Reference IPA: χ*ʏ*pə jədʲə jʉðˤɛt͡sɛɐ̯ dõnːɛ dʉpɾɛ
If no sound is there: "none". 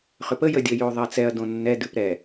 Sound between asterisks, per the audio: ʏ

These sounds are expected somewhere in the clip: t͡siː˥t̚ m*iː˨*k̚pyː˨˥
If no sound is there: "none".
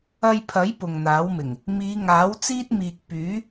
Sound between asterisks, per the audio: iː˨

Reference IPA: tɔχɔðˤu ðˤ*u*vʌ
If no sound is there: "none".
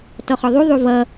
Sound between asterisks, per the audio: u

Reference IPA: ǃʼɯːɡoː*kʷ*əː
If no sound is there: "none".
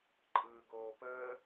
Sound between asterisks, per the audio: p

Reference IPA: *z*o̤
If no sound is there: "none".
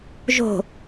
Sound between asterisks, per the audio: ʒ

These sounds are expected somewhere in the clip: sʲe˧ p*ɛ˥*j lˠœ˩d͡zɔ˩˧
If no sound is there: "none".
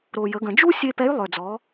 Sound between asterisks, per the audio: ɛ˧˥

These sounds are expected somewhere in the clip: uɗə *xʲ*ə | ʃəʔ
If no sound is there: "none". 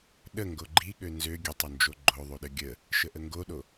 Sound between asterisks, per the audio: ɡʲ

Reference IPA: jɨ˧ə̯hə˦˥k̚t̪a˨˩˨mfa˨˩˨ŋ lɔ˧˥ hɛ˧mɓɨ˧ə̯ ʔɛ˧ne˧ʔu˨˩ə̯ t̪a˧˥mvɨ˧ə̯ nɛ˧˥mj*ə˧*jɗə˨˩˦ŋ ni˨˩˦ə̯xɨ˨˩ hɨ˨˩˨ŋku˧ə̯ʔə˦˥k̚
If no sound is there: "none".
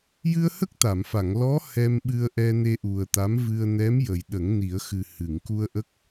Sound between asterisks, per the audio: ə˨˩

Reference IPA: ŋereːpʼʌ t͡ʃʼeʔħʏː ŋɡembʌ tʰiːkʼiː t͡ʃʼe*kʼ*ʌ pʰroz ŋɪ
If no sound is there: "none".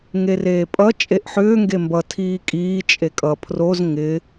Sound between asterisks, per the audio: kʼ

